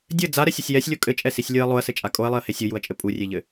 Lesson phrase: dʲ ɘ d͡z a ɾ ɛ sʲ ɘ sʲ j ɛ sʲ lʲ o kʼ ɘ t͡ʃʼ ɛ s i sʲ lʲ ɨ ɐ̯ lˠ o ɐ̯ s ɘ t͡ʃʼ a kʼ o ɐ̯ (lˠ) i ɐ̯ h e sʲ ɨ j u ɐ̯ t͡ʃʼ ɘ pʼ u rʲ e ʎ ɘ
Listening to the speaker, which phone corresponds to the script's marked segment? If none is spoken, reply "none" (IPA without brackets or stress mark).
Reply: lˠ